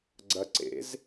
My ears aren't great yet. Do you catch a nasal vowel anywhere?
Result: no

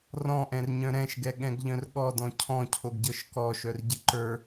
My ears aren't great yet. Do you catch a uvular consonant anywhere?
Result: no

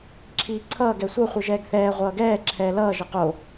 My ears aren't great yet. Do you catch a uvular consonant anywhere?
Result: yes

